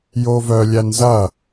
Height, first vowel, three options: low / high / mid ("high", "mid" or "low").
mid